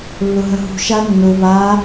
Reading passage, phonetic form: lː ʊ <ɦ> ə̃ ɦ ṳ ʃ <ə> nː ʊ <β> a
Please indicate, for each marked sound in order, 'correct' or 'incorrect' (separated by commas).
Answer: correct, incorrect, correct